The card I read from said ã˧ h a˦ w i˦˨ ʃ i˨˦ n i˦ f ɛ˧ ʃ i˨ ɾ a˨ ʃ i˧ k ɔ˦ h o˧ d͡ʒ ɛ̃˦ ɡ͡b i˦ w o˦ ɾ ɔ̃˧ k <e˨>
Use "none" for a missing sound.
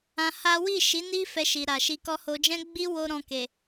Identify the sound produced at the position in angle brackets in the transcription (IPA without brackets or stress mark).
e˨